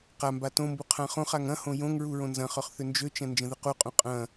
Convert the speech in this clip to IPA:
q a m b a t õ m b u qʰ ã χ õ χ a ŋ ɐ̃ h õ j õ ŋ ɹ u ɹ õ n z ɐ̃ χ œ χ θ ʏ n d͡ʒ ø t͡ʃ ɐ̃ n d͡ʒ ə̃ ð ə q u qʼ ũ qʼ ɐ̃

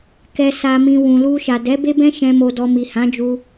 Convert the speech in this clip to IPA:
k ɛ˨ s a˨ m ĩ˨ w ũ˨ l u˧ ʃ a˨ d ɛ˨˦ b e˦ b ɛ̃˦ ʃ ɛ̃˧ m o˧ d ɔ˧ m i˨ h ã˨˦ d͡ʒ u˧

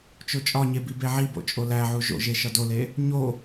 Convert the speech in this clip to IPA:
t͡ʃ o t͡ʃʼ ɒ ɲ e b i b e ʕ i b o̰ t͡ʃʼ o l æ ʕ u ʒ o̰ ʒ e ʃ ɒ d o l e | ɲ o

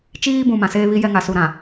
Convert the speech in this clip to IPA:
t͡ʃ iː˦ b ũ˨ m ã˨ s eː˦ β i˦ j ɛ˦ ŋ a˨ s u˨ ɾ ã˨

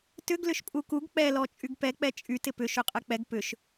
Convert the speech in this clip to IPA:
t ʏ ɡ l ʏ ʃ pʼ u k u ɡ k͡p ɛ l ɔ t͡ʃʼ y ɡ p ɛ k͡p ɛ t͡ʃʼ y t ɪ p ʏ ʃ ø qʼ ɛ k͡p ɛ ɡ p ʏ ʃ

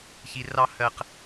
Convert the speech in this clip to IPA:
ç i˧ r ɑ˦ h ɜ˦ q

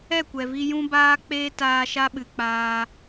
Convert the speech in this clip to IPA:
ɛ˦˨ kʷ ɛ˨ v i˧ j ũ˦ b aː˦ k͡p eː˦ t aː˧ ʃ a˦ ɓ ɨ˨ k͡p aː˧

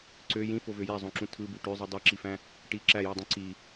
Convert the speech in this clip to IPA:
ǀ ø j ĩ f o v ø j æ zˤ õ ǁ ũ tʰ ɯ b u ʈ ø zˤ ɯ dˤ i ǁ i f æ̃ | ʈ i ǁ æ j ɯ dˤ ũ ǀ i

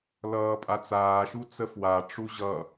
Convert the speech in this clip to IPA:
l ʌː pʼ a t͡s aː ʃ u t͡s ə f w a ʈ͡ʂ u ʑ ʌ

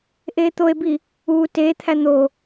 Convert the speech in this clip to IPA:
ʔ eː t̪ o e̯ b i | uː t eː t̪ʰ æ n̪ o

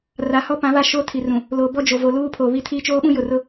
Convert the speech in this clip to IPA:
r a˨ h ɔ˦ p ã˨˦ β a˦˨ ʃ o˦ tʰ i˨ r ũ˨ | l o˨ b ɔ˦ d͡ʒ o˨ v o˨ l uː˦ pʰ o˨ β i˦ tʰ i˦ t͡ʃ oː˦ ɓ ũ˦ j ʊ˨ r ʊ˦

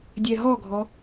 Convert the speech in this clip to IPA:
dʲ ɛ ɦ ɔ ɡʱ ɔ

